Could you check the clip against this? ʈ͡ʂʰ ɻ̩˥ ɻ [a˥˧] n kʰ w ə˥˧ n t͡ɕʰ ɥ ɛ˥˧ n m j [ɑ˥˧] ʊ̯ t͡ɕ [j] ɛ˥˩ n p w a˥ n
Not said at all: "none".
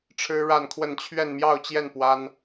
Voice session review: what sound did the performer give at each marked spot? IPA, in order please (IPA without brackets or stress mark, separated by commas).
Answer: a˥˧, ɑ˥˧, j